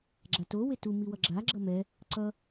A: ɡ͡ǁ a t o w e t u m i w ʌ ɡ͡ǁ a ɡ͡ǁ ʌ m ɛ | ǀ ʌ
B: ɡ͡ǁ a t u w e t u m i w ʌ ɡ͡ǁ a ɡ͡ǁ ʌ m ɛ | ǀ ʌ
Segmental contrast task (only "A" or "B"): A